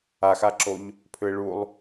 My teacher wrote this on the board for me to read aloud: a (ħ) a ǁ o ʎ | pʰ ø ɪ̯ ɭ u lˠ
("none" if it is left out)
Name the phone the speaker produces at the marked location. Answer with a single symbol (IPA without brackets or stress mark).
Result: x